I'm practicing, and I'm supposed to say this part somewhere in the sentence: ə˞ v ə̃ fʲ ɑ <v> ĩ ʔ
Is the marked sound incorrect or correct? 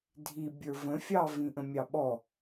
correct